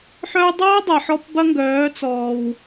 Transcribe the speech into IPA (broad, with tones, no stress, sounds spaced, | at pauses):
ħ œ˦ dˤ oː˦ dˤ ɐː˨ ħ ɔ˧ p b ɐ˦ ŋ ɡ œː˨˦ t͡s ɔː˨ w